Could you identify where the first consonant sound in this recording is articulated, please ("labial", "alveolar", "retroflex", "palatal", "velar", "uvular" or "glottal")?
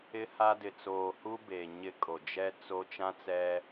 glottal